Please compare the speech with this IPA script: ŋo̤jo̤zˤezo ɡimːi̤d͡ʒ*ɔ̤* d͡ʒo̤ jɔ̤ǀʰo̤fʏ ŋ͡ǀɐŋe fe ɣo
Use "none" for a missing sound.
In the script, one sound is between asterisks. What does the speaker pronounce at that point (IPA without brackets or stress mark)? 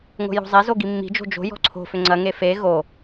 o̤